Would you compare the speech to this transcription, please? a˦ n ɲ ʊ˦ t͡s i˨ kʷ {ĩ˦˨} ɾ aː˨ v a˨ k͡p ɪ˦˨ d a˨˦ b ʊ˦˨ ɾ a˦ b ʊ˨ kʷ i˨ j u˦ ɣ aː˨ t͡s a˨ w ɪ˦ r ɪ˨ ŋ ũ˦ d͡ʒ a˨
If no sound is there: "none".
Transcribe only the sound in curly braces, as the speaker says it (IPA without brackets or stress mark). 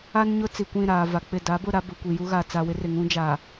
ĩ˦˨